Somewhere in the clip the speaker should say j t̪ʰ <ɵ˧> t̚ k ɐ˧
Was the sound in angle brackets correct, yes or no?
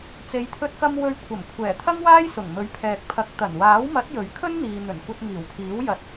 yes